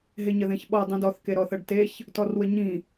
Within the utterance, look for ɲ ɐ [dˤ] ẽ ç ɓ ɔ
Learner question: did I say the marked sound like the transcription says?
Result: no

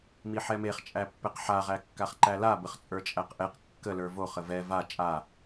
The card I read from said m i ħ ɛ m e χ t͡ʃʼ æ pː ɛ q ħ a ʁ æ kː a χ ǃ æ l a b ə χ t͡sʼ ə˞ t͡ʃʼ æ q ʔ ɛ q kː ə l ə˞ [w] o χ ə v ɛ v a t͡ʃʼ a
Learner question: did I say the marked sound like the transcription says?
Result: no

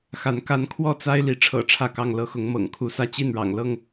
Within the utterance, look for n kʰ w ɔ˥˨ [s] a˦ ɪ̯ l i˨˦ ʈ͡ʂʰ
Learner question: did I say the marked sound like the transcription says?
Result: no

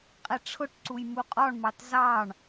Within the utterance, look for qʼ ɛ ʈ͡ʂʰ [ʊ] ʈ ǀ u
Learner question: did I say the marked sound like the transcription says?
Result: yes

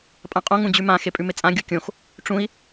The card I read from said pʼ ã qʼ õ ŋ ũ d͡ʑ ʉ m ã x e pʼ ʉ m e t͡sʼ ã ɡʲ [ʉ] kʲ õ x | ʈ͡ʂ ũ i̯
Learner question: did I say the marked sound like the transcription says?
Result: no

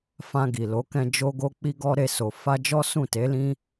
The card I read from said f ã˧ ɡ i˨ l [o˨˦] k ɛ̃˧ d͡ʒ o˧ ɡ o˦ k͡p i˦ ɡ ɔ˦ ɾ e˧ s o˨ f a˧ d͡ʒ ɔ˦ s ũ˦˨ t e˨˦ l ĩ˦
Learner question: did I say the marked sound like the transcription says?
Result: yes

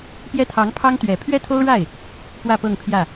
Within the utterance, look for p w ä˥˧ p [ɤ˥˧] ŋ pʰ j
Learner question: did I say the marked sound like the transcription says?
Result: yes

